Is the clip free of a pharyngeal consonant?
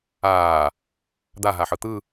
no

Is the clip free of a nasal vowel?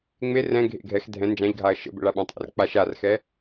no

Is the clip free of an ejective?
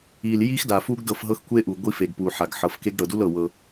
yes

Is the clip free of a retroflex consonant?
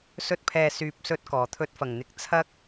yes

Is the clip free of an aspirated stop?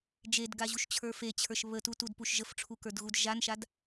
no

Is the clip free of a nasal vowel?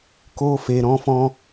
no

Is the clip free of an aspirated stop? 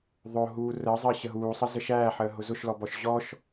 yes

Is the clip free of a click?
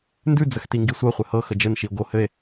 yes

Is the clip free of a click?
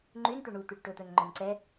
no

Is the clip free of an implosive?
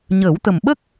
no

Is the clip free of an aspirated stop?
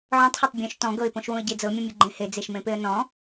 yes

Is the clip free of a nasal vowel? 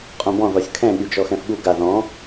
no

